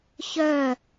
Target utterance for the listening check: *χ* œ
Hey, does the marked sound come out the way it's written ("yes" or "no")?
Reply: no